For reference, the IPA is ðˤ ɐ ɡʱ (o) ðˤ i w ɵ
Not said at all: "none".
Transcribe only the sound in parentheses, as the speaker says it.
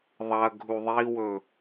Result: u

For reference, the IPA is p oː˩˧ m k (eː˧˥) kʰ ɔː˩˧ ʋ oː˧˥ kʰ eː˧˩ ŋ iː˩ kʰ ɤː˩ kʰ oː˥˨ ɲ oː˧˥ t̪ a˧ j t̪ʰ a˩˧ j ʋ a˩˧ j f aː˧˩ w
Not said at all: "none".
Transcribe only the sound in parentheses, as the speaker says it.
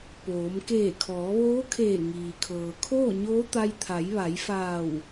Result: eː˧˩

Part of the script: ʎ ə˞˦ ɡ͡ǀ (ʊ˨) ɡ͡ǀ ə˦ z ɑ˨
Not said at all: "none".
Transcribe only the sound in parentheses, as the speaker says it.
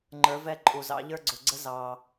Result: ʊ˨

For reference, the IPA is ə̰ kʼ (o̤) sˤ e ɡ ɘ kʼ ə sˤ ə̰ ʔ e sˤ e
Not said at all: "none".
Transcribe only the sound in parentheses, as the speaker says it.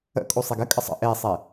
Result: o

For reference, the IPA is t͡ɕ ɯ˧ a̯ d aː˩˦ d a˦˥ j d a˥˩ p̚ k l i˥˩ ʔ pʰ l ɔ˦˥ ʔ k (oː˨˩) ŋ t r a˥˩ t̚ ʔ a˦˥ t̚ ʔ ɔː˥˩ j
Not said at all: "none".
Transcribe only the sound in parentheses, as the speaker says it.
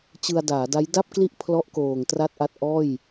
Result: oː˨˩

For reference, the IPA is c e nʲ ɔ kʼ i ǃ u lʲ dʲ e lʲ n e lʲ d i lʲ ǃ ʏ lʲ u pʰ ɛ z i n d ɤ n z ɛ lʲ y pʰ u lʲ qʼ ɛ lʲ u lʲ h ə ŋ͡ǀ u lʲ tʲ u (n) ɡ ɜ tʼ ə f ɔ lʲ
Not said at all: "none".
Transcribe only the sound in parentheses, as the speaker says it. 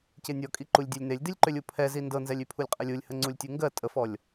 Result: ŋ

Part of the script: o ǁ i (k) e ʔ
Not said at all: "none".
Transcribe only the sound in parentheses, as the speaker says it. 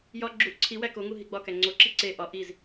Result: ǀ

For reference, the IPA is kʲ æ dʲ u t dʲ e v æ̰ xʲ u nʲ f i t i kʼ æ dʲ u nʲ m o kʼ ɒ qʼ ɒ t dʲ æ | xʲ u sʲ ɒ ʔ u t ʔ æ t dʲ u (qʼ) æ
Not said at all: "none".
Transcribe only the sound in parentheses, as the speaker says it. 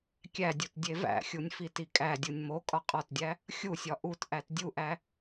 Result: ʔ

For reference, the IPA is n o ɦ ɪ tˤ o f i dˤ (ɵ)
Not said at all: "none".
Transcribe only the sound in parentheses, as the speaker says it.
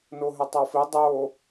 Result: o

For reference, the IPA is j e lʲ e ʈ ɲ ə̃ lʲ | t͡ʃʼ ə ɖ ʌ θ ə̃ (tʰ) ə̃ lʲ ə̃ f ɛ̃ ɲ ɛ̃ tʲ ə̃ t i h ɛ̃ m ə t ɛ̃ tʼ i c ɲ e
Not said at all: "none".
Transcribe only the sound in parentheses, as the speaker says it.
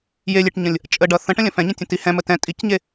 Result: ʈ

